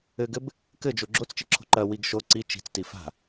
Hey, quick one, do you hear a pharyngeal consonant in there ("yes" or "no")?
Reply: no